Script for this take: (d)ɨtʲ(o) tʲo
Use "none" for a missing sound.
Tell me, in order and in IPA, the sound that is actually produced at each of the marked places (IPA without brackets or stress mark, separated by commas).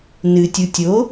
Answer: n, u